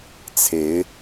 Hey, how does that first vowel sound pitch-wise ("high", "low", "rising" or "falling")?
rising